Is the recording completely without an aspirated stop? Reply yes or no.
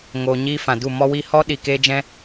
yes